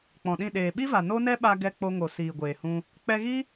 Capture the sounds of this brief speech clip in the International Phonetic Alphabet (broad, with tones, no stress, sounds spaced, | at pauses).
k͡p ɔ̃˨ ɗ ĩ˦˨ ɗ eː˨ ɓ i˦ v a˨ n o˦ n ɛ˦ ɓ a˧ ɡ ɛ˧ k͡p o˧ ŋ o˨ s iː˨ ɡʷ eː˨ h ũ˧ | k͡p ɛ˧ ɣ i˦